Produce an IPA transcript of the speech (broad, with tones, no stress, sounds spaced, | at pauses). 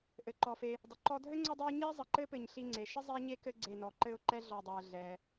ʔ ɘ˩ ǃ ɔ˩ f e˨ | dˤ ə˩ ǃ ɔ˦ dʱ ɘ˥ ŋ͡ǀ o˦ dˤ o˦ ɲ i˥ zˤ ə˨ ǃ ɘ˥ p ɘ˨ ɲ ɬ i˦ ŋ͡ǀ e˩ ʃ ə˥ zˤ ɛ˥ ɲ e˥ k ɘ˦ ɡ͡ǀ e˨ n ɔ˩ ǃ ɘ˦ ʊ̯ ǃ ɛ˥ ɮ ɔ˨ dˤ e˩ ə̯ ɮ ɛ˩